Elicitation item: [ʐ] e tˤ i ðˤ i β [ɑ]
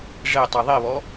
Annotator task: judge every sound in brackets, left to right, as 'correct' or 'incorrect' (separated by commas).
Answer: correct, incorrect